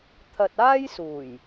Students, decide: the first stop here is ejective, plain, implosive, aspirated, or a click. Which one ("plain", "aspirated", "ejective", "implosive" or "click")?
aspirated